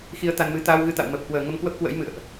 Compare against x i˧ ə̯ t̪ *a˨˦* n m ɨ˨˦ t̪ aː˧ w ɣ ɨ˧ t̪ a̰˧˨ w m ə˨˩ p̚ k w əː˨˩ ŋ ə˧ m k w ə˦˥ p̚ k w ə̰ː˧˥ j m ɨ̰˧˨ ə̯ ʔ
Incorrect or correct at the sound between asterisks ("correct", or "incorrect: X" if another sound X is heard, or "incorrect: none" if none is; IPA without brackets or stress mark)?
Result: incorrect: a˧